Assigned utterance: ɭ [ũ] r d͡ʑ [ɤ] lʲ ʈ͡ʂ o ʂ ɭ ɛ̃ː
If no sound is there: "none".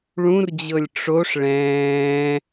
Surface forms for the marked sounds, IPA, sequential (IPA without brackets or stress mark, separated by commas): ũ, ɤ